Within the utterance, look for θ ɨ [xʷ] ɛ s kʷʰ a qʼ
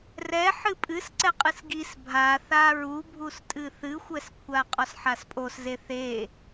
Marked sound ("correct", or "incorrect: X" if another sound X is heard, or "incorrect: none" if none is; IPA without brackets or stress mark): correct